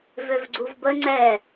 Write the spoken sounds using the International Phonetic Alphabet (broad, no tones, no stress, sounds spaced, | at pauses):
v ø v ɡ͡ǀ u v b ə ŋ͡ǀ ɛ